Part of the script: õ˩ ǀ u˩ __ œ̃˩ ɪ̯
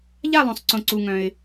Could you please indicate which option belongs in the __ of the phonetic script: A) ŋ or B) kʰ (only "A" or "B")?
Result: A